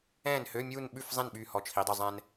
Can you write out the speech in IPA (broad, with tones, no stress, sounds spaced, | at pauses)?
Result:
ɛ̃ː˥˩ n h ø˧˥˧ mʲ uː˥˧ n ɓ ʉ˥˩ f zˤ ẽ˥˩ n ɓ yː˥˩ h ɔ˧ t͡ʃʰ i˩˥ dˤ y˧ zˤ ɛ̃ː˧ n